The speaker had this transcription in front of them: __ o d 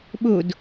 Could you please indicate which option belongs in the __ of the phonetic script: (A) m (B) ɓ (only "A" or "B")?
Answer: B